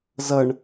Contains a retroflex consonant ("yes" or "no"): yes